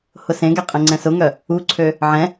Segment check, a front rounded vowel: present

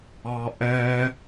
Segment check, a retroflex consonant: absent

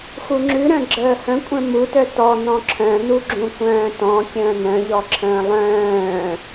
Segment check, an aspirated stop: present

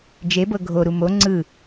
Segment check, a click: present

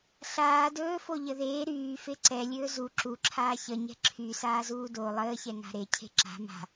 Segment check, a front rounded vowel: present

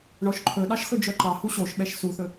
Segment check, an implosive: present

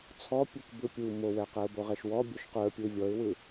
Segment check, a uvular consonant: present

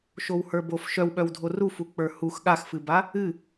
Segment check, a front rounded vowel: present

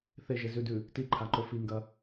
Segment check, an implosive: absent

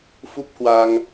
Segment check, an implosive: absent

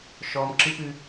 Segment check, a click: present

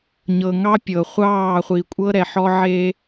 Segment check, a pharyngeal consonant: present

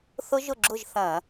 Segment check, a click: present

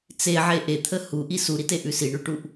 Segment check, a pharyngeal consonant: present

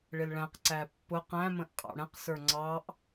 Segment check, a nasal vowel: present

